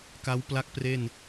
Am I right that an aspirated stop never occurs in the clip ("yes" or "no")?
yes